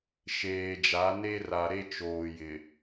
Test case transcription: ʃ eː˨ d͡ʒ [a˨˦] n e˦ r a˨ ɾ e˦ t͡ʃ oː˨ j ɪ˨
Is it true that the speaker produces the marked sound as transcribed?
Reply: yes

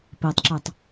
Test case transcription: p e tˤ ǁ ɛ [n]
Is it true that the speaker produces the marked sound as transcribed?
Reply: no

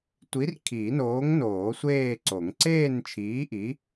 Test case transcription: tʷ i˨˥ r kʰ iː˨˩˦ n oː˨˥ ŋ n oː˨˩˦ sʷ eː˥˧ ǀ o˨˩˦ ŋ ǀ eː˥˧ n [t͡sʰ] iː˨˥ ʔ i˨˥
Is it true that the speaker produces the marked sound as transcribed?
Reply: no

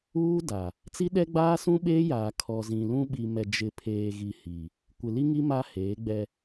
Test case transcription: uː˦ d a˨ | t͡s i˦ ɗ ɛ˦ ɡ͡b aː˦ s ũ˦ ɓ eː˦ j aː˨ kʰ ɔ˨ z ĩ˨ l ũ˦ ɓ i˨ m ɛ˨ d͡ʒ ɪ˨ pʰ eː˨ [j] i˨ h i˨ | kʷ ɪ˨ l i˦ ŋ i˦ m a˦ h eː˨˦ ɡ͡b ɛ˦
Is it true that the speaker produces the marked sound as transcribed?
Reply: no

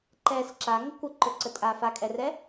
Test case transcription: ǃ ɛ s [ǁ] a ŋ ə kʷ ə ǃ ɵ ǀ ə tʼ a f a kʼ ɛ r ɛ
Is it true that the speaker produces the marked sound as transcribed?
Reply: yes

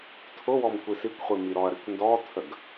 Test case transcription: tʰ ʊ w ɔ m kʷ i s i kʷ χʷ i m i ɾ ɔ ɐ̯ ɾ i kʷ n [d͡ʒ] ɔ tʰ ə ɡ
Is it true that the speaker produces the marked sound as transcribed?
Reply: no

